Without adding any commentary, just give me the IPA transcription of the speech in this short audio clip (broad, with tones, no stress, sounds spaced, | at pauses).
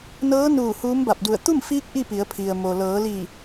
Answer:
n ɤː˧˥ n uː˧˩ h uː˧˥ m b a˧˩ p̚ d u˧˩ ə̯ t̪ u˥˨ m f iː˧˥ k̚ ʔ i˥˨ p i˩˧ ə̯ pʰ i˩ ə̯ m o˩ l ɤː˩˧ l i˧˩